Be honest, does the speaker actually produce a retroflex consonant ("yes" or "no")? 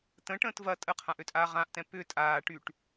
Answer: yes